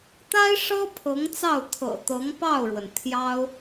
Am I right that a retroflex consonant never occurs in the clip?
no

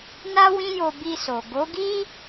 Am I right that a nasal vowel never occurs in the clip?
no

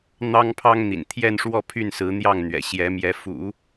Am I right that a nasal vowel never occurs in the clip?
yes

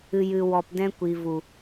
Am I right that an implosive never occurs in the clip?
yes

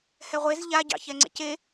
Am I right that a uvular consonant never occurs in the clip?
no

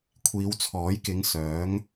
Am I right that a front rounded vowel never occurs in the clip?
no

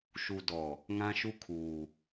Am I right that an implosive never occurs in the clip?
yes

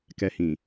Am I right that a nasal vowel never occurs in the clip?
no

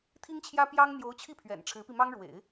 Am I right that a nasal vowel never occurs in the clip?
yes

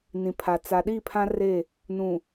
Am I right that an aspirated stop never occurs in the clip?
no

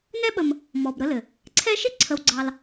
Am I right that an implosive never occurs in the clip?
no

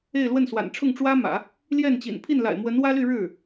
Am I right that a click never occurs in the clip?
yes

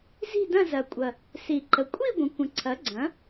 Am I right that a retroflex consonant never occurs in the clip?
yes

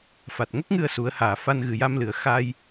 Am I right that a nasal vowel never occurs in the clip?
yes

